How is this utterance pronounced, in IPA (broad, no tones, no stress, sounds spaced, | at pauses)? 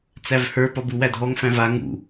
t͡s æ v h ə˞ p ɒ b u w æ dʱ ɔ ŋ f æ̃ v a ŋ ṵ